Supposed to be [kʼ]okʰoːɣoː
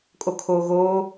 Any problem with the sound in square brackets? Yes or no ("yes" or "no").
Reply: no